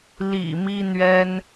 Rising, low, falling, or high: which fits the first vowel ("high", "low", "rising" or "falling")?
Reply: low